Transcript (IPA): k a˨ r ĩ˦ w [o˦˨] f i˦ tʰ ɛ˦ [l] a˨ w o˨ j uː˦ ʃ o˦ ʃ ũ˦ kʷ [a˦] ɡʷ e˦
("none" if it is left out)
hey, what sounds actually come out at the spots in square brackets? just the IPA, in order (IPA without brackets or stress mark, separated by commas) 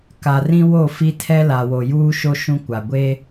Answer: o˦˨, l, a˨